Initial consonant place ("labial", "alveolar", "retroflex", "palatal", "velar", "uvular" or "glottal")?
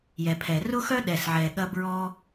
palatal